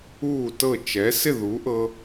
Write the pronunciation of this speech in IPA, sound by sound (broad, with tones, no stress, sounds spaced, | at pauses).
uː˥˩ t ɤ˥˩ t͡ʃ ɛ˩˥ s ɪ˥˩ ð u˩˥ ʔ ɤ˧